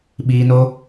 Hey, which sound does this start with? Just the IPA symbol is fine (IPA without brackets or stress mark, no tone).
ɓ